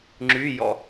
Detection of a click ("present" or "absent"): present